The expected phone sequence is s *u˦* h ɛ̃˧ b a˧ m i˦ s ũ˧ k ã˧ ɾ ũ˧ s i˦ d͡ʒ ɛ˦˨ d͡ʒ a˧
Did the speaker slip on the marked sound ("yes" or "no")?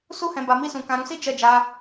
no